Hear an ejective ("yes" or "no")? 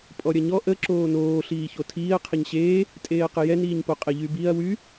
yes